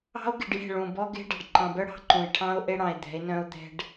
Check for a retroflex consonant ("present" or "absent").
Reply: present